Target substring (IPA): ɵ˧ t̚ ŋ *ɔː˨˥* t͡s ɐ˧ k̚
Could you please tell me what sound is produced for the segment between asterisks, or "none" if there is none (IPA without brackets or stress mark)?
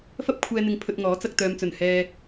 ɔː˨˥